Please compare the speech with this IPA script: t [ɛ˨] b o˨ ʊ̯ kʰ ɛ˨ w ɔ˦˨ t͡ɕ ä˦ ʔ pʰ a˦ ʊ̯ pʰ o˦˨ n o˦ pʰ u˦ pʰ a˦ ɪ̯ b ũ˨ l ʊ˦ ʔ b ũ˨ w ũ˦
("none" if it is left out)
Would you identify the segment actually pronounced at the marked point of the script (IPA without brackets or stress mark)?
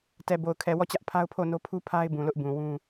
ɛ˨